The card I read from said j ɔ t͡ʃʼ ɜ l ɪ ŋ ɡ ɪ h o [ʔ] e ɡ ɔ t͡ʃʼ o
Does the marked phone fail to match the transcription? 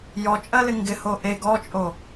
no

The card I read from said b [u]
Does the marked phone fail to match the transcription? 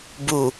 no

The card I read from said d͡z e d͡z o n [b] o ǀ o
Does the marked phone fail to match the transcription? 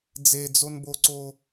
no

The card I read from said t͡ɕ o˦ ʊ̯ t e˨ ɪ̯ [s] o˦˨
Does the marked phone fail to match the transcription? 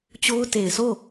no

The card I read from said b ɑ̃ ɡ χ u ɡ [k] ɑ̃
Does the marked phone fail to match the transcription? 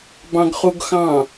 yes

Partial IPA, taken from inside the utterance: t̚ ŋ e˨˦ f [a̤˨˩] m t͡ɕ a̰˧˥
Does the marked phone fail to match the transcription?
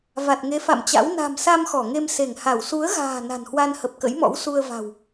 yes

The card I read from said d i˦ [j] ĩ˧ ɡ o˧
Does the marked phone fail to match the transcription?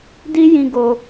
no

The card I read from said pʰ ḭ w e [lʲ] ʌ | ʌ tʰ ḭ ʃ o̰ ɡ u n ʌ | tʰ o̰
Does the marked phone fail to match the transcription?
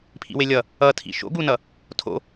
no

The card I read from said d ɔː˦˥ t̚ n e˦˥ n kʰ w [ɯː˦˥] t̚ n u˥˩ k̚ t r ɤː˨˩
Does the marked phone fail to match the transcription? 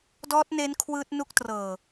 no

